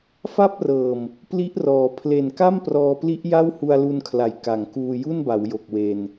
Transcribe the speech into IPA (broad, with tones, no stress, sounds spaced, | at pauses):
f a˥˩ p̚ r ɤː˨˩ m | p l i˦˥ ʔ r ɔː˩˦ pʰ l e˨˩ n k a˥˩ m p r ɔː˧ p l i˦˥ ʔ j a˥˩ w h u˧ a̯ l u˧ n kʰ l a˩˦ j k a˩˦ ŋ k uː˧ j u˥˩ n b a˩˦ w j o˨˩ k̚ w e˧ n